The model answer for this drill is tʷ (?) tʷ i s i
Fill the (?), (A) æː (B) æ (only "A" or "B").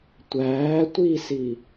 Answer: A